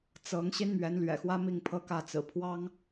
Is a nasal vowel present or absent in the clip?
absent